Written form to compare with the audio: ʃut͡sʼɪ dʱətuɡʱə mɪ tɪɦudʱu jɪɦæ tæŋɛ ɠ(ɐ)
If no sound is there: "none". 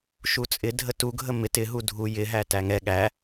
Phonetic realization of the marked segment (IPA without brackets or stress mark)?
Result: æ